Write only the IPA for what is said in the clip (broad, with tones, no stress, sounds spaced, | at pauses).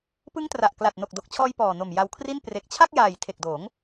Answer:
p ɯ˦˥ ŋ t r a˨˩ ʔ k l a˨˩ t̚ n o˨˩ k̚ d o˨˩ k̚ t͡ɕʰ ɔː˧ j p ɔː˨˩ n o˨˩ m j a˧ w kʰ r i˥˩ n p r e˨˩ k̚ t͡ɕʰ a˥˩ k̚ j aː˨˩ j tʰ e˨˩ k̚ d oː˩˦ ŋ